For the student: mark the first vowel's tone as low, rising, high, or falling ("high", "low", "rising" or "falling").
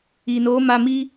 low